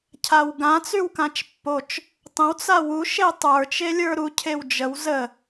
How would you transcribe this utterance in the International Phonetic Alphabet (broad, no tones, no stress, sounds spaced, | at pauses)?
cʰ a w ɡ ã t͡s y w k ã t͡ʃ pː o t͡ʃ | tˤ ə̃ w t͡s a w u ʃ e tˤ ə˞ t͡ʃ e lʲ ə˞ ɾ u cʰ e w d͡ʒ ə w z ə